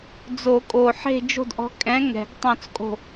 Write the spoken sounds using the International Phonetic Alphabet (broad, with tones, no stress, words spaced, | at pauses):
d͡zo˨˩˦kʼo˨˩ħe̤˦˨ d͡ʒo̤˦˨dʔɔ̤˨˥ kʼɛ̃˨˥ ŋɛ̤˨˩˦ɡtˤõ˦˨t͡skʼo̤˦˨